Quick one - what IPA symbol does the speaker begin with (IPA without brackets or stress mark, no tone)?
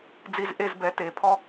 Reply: d͡z